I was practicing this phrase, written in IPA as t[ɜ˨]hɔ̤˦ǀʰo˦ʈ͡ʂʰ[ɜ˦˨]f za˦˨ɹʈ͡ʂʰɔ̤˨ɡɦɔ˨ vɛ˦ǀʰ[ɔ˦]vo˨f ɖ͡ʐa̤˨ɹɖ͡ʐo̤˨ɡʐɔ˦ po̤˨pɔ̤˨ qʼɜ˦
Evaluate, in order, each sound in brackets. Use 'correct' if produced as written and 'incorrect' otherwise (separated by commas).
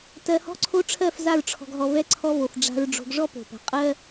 correct, correct, correct